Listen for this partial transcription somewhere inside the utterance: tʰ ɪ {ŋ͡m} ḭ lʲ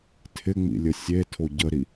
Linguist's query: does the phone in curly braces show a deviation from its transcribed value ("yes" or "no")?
no